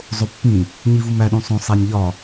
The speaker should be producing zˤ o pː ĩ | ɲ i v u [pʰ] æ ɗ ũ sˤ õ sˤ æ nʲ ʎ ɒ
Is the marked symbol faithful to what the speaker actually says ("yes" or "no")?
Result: no